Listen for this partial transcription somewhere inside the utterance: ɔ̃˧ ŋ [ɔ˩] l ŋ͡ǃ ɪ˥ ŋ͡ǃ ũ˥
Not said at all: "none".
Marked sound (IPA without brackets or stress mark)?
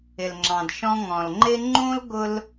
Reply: ɔ̃˩